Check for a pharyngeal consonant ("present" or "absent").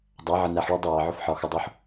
present